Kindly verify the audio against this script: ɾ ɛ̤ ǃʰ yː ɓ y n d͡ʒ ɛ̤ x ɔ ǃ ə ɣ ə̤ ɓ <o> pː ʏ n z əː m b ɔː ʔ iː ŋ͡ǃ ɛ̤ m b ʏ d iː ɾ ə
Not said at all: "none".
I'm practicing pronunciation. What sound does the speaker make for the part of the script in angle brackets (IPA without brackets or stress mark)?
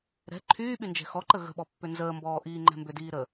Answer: ɔ